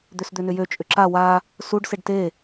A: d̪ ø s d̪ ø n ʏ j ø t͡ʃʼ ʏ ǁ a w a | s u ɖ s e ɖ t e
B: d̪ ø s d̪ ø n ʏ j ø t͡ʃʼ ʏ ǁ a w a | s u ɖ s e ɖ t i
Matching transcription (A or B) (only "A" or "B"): A